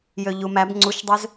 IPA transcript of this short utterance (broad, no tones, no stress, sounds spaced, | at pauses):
j ø ʎ u m æ b ŋ͡ǀ u ʃ dˤ ø z